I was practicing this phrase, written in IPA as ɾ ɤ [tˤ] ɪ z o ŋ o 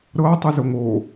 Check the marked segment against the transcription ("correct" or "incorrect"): correct